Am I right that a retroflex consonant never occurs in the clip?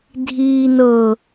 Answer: yes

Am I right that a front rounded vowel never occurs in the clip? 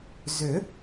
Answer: no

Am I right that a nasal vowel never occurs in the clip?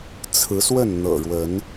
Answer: yes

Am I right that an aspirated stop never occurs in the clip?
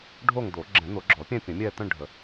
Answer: yes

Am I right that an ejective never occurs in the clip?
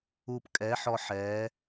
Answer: no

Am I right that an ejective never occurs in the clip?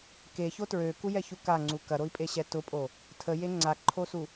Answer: no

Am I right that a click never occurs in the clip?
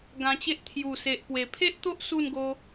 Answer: yes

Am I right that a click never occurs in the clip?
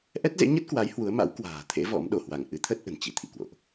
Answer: yes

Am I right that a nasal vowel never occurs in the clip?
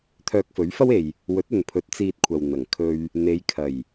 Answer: yes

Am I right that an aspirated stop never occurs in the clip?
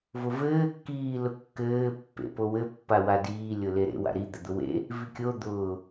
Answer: yes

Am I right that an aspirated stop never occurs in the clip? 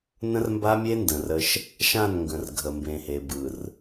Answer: yes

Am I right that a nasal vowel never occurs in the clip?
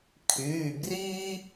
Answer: yes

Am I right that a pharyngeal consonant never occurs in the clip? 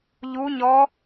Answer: yes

